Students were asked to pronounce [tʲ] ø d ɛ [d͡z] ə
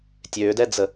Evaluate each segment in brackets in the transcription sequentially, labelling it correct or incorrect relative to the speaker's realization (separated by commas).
correct, correct